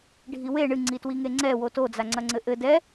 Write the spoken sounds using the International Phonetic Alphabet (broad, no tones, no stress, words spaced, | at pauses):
ɖʱiwe ɳɨ ŋ͡ǀitwiŋeŋ͡ǀɛ woto d͡zaŋ͡ǀɐŋ͡ǀɘʔɘ dɛ